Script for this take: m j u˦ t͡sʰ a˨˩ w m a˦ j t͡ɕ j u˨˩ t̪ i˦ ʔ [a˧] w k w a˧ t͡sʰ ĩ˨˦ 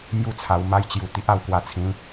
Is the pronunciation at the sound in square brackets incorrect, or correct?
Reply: correct